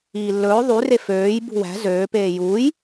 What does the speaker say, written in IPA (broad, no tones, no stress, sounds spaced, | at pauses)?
iː lː ɵː ðˤ y r e f øː j b ṳ w æ̤ z øː p eː j uː j